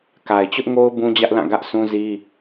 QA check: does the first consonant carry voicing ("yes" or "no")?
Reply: no